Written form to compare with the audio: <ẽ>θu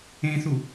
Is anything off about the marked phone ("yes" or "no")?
no